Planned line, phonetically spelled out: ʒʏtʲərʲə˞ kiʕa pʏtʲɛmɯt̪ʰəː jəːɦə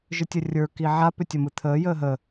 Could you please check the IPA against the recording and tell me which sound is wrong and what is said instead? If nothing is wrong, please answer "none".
ɛ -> ə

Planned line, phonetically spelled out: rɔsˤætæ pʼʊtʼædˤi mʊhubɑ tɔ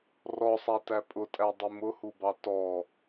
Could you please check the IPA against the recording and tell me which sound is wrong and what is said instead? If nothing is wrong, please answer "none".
none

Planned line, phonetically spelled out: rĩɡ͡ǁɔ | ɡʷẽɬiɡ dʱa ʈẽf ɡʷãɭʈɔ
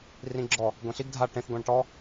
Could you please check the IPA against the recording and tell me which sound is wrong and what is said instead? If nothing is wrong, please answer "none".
none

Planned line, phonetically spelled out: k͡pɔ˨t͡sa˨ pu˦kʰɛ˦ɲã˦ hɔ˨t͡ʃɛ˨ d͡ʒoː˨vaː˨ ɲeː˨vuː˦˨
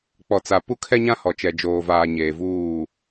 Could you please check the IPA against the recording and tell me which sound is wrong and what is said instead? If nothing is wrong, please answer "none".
none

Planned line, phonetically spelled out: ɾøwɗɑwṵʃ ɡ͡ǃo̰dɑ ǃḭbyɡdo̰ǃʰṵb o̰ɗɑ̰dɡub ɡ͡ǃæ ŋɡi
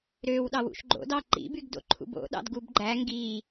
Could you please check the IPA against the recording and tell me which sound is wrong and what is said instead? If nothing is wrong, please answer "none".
none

